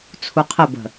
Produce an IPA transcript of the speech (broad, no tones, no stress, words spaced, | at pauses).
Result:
t͡sʰuqʰəbə̤